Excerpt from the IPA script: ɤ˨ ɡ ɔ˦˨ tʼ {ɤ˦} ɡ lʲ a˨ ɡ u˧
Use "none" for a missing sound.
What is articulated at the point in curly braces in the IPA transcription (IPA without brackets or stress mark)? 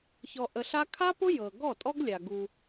ɔ˦